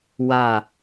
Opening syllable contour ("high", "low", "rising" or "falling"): falling